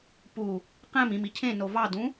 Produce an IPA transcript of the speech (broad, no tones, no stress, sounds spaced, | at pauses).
p u | q æ̃ m ĩ m i cʰ ẽ n o v ɑ d ũ